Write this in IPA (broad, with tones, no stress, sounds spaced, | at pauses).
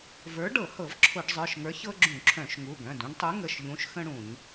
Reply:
v ə˞˨˥ ɖ ɤ˧˩˧ h ɤ˧˩˧ v ǁʰ ʊ˧˩˧ ɖ zˤ ə˞˩˧˩ ʃ ŋ ə˞˨˥ ç ɤ˦ ɡ͡ǁ ũ˧˩˧ ǁʰ œ̃˧˩˧ ʃ ŋ u˩˧˩ ɡ œ̃˩˧˩ d ũ˦ ɖ tˤ u˨˥ ŋ ə˩˧˩ ʃ ʎ ũ˨˥ ʃ x ə̃˦ ɽ ũ˧˩˧ ɲ